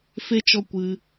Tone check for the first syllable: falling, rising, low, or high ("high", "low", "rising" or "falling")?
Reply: high